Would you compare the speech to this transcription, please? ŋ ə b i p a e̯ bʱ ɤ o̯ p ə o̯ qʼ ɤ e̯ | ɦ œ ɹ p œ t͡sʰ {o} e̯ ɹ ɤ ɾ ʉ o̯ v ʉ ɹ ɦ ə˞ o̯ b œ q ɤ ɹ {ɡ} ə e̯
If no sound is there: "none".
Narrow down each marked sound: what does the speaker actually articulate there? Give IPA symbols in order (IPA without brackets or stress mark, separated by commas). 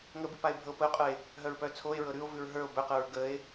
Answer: o, ɡ